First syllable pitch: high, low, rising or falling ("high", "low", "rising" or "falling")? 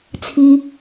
high